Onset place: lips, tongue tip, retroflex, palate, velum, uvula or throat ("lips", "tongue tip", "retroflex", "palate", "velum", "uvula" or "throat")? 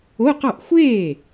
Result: uvula